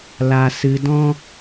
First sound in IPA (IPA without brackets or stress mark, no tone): l